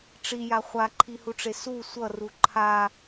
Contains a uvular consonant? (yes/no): yes